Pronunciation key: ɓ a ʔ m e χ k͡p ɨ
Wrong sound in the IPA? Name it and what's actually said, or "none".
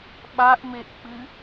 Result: χ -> ʔ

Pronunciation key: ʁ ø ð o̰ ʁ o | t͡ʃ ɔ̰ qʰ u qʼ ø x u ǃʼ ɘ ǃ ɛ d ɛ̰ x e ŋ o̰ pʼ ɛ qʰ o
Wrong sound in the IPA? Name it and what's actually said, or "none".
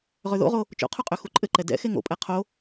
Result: ɔ̰ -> o̰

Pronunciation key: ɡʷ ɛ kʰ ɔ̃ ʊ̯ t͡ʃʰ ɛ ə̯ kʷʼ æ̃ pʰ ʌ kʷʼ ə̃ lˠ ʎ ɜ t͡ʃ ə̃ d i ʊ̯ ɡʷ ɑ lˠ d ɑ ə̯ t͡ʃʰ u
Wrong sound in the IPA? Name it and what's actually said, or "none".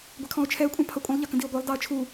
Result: t͡ʃ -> k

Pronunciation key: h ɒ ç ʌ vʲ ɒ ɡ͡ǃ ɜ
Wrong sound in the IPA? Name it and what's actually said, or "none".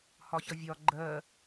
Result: none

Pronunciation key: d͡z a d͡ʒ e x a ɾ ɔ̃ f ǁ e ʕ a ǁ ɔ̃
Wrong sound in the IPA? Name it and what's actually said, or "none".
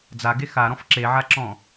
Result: d͡ʒ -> ɡ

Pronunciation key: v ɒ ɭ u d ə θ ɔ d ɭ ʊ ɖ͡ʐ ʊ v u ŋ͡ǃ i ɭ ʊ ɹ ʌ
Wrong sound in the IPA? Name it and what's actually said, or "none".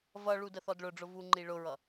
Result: ɒ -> ʌ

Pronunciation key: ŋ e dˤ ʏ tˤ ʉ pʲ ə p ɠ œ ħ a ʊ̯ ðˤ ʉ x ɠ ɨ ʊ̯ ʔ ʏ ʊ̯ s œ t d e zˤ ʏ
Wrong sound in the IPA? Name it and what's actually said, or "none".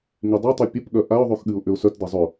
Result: ħ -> ʔ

